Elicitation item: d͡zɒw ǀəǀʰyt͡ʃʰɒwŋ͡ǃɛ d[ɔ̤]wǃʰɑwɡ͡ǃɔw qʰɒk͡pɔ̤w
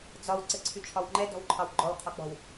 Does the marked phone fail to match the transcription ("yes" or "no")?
no